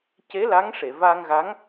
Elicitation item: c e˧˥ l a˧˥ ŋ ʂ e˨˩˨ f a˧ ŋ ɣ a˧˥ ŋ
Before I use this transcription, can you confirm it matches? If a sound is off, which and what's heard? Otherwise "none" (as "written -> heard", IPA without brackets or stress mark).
f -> v